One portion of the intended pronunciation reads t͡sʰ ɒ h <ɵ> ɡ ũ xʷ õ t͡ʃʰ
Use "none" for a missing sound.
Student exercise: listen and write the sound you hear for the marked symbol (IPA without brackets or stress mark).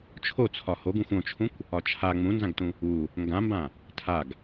o